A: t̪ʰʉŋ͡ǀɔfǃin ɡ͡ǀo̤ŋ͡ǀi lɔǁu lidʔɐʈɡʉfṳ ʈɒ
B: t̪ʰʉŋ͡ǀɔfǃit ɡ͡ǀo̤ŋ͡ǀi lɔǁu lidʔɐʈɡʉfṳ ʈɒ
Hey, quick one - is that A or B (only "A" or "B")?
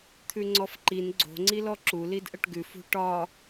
A